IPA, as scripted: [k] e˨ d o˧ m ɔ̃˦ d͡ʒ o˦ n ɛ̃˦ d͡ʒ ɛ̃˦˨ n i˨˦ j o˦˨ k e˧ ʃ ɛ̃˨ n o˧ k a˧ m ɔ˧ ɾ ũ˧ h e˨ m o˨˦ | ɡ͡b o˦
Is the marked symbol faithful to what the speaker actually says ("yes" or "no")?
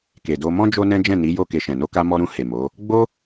yes